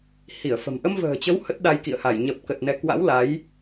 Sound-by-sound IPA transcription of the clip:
h i˧˩ ə̯ f ə̤˨˩ m ʔ ə˧ m v ə̤ː˨˩ t͡ɕ ə˨˦ w h ə˦˥ t̚ ɗ a˧ j k ḭ˧˨ ə̯ h a˧˩ j ɲ ə˨˩ p̚ k ə˨˩ t̚ n ɛ˨˦ k w a̰˧˥ w l a˨˦ j

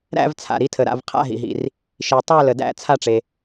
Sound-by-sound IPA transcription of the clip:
ɾ æ̰˥˧ v t͡sʰ a̰˩ ɾ i˨˦ tʰ ə˩ ɾ a̰˥˩ v qʰ a̰˥˧ ɦ ḭ˩ ɦ ḭ˩ r | ʃ i˩ tˤ æ˥˩ l ə˩ d æ̰˥˩ t͡sʰ a˥˧ ʈ͡ʂ e˩

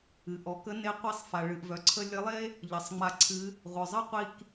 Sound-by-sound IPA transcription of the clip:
ɨ˩ ʔ ɔ˩˧ k ə˧˥ n e˧˥ qʷ i˧ sˤ f a˩ ɭ ɨ˩ ʔ v œ˩ ǀʰ ə˧ lʲ ə˧˥ lˠ e˥ | ʎ ʌ˩ sˤ ŋ͡m a˧ ǀʰ ɨ˧˥ | ʁʷ œ˩ zˤ ʌ˥ qʷ i˧ k

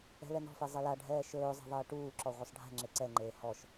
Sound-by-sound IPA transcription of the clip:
ɛ̤ l ɛ n ɔ̤ f ɛ zˤ e l a ɖʱ ɛː ʃ ɵː zˤ ɛ̤ ðˤ ɛː ʈ uː ǁ ɔ ʁʷ e sˤ ɖʱ ɛ̤ ŋ͡ǁ e ǀ ɛ ŋ͡ǃ eː h ɔ ʃ

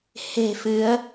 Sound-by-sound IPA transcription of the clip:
h e̤˨˩ f ɨ˨˦ ə̯

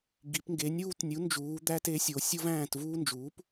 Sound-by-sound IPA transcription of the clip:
ɡ i˩˧ p ŋ ɡ e˩˥ nʲ uː˦ t nʲ u˩˥ n d͡ʒ uː˩˧ d̪ æ˦ t e˩˥ sʲ o˩˧ sʲ o˦ v æ̃ː˦˨ t v uː˦ n d͡ʒ uː˩˥ p

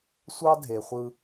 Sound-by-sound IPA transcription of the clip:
sʷ ɑ˦ dʱ e˨ χʷ ɯ˦

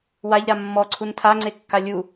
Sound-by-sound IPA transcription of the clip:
w a ʎ ɾ a mː ɔ ǀʰ u n tʰ a ŋ͡ǀ e kː a lʲ u

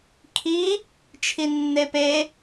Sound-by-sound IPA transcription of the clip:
kʰ i | t͡ʃʰ i nː e p e

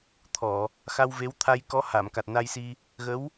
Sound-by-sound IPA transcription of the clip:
t̪ʰ ɔ˨˩˨ | x a˧ w v e˧˥ w t̪ʰ a˧ j k ɔ˧˥ h a˨˩˨ m k a˨˩ t̚ n a˧ j s i˧ | ɣ ə˧˥ w

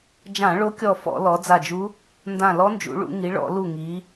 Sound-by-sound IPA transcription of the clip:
d͡ʒ ã˧˩˧ ɭ o˧˥ kʲ ɔ˧˩ f ɔ̰˧˩˧ l ɔ˩˧ d͡z a˧˩ d͡ʒ u˧˥ | n d ã˧˩ l ɔ˧˥ n d͡ʒ ṵ˩˧ ɭ ṵ˩˧ ŋ i˩˧ ɭ ɔ̰˧˩˧ l u˧˩ ŋ i˩˧

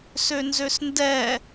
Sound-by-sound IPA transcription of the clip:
s ø n z ø s n d ɛ

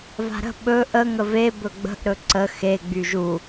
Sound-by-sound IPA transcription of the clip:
v a̤ ɾ ə̤ ɓ ɵ ʔ ə ŋ ə v e b ɵ ɡ͡b ə̤ ʔ ɾ ɵ ǀ ə x e ɡ͡b y ʒ u

